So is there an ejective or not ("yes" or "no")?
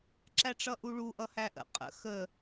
yes